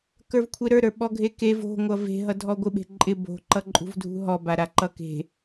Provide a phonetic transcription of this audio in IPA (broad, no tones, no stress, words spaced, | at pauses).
kə˞vkʷʰeɾə˞ɾə˞ ɓɔɡʱekev o̤ŋʷʌ ve̤ɦʌdʱɔ ɡʷɪɓe̤ ǃʼɪ bo̤ǃʌ ǃʼṳvdʱṳɦɔ baɾaǃʌke̤